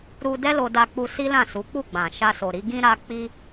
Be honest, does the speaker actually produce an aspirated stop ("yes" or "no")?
no